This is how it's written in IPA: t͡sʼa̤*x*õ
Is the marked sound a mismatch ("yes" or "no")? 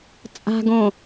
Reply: yes